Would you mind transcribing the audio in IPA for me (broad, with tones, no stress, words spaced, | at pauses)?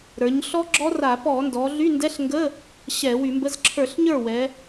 ɾə˞˩˧ɲɬɔ˦˥ɡ͡ǁɔ˦˥ra˧˩˧ pɔ˧˩˧ndɔ˩˧ɮy˧˥˧ndɛ˧˥˧ɬ ŋɡə˧˥˧ | ɕɛ˧˩˧wy˧˩˧mbə˧˥˧z ǁʰə˞˧˩˧ɬɲə˞˥˩wɛ˩˧